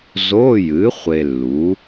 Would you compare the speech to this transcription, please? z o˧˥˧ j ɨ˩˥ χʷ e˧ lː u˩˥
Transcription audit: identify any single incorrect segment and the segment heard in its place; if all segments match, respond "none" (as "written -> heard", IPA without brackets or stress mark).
none